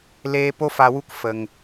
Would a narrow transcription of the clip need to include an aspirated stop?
no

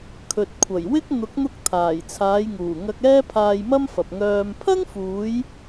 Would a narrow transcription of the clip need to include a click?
no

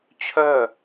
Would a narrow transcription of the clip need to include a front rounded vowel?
yes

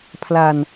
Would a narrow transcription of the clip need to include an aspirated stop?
yes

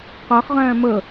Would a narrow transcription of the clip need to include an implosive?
no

